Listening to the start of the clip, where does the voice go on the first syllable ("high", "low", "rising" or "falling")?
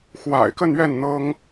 low